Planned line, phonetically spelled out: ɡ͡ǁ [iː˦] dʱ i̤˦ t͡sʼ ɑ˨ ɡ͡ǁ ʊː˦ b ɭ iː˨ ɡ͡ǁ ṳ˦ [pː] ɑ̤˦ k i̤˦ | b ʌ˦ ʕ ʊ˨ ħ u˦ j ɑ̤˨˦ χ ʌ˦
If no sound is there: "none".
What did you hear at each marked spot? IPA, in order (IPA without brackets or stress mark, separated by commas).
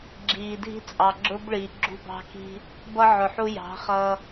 iː˨, b